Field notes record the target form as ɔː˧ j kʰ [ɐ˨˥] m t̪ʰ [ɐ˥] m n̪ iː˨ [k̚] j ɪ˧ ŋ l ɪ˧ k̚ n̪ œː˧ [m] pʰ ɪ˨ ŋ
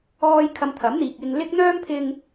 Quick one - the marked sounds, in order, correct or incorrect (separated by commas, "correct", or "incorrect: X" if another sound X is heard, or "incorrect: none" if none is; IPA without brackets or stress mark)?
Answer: incorrect: ɐ˧, incorrect: ɐ˨˥, correct, correct